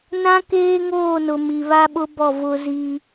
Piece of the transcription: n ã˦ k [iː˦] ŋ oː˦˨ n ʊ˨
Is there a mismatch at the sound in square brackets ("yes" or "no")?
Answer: yes